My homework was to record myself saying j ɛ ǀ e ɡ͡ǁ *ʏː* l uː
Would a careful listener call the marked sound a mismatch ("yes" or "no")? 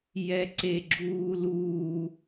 yes